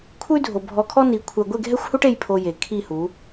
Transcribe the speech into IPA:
kʷʰ ɨ˦ y̯ dʱ o˨ bʱ ɔ˧ kʰ ɔ˦ n i˨˦ kʷʰ ɛ˨ ɡʷ e˦˨ ɡʱ ɛ˦ xʷ h u˦ ʈ e˦ j pʰ o˧ j e˨ kʰ i˦˨ h u˨˦

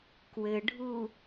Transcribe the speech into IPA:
k w ɘ ɖʱ u

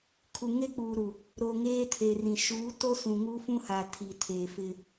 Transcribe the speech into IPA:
kʰ u˨ ŋ e˦ k͡p uː˨ ɾ u˨ | ɾ o˨ ŋ eː˦ tʰ e˨ r ĩ˨ ʃ uː˨˦ t o˦ s ũ˨ ŋ uː˦ f ũ˦ h aː˨ tʰ i˨ tʰ eː˨ f ɪ˦

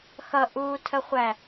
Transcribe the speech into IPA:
x ʌ ʔ uː tʰ ə χʷ æ

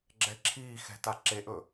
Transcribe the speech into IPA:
ɡ͡ǁ ɛ ǁʰ iː x ɛ̤ t a ǁ e ʔ ɵ

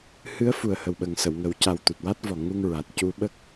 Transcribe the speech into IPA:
h ɨ˧˥ ə̯ f u˨˩ ə̯ h ə˨˩ w ɓ ə˨˩ ŋ s ə˨˩˨ w ŋ ə˨˩˦ w c a˨˩ w t̪ u˨˩ t̚ w a˦˥ t̚ v ɔ˨˩ ŋ u˧ ŋ ɹ a˨˩ t̚ c u˧ ɓ ə˦˥ k̚

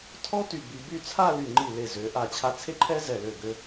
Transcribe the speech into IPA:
tʰ ɔ˥ t y˧˩ b i˧ b y˥˧ t͡sʰ a˥˧ l y˧˩ ŋ͡ǃ i˧˩ l e˧˩ z ø˩˧ ʔ a˧˩ t͡ɕʰ a˧ t͡sʰ e˥ ǃʰ ɛ˥ z ɛ˧˩ l ø˧˩ ɡ ø˧

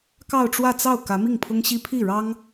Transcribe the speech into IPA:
k ɑ˥˧ ʊ̯ ʈ͡ʂ w ä˥˧ t͡s ɑ˥˩ ʊ̯ k ä˧˥ m i˥˩ ŋ pʰ ʊ˥ ŋ ɕ i˥ pʰ i˥˩ ɻ ɑ˥ ŋ

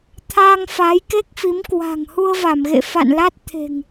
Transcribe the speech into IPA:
t̪ʰ a˧ ŋ f a˨˦ j k e˦˥ k̚ f i˨˦ m k w a̤˨˩ ŋ h u˧ ə̯ v a˧˩ m ɣ ḛ˧˨ f a̰˧˨ n l a˦˥ t̚ t̪ʰ e̤˨˩ ŋ

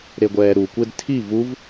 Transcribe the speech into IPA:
ɾ e ɡʷ ɛː ɾ u kʷ e d tʰ i v u v

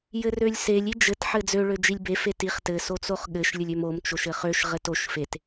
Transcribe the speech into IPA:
j ɘ r ø lʲ s e lʲ i d͡ʒ ɘ t ħ ɘ d͡z ø ɭ ø d͡ʒ i lʲ b e f e t i χ t ɘ s o t͡s o χ ɠ ɘ ʃ lʲ ɘ lʲ ø m o m t͡ʃ o ʃ ɘ χ ø ʃ ʁ ɘ t o ʃ f e t

